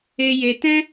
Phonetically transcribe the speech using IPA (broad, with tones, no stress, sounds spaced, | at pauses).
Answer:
e˧ j e˧ t ɛ̃˧